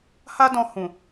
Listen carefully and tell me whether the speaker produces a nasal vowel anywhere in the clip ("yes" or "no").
yes